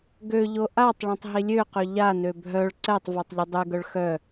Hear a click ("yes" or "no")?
yes